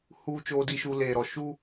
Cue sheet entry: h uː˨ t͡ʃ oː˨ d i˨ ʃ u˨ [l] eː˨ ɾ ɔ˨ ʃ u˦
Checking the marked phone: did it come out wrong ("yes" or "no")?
no